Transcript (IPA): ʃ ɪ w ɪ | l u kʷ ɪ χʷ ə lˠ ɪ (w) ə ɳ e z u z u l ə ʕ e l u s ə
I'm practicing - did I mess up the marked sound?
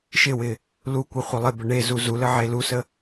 yes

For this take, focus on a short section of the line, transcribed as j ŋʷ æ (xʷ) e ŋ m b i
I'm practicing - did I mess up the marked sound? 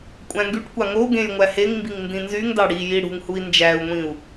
yes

